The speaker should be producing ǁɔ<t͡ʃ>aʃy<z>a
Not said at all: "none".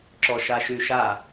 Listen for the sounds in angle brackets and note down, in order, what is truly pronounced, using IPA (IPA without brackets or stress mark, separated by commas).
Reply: ʃ, ʃ